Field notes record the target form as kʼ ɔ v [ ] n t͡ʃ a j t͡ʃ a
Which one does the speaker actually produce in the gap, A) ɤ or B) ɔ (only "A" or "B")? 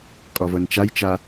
A